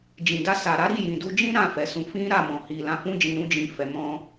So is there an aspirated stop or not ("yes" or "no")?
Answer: no